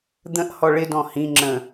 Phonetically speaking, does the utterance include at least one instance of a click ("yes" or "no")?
yes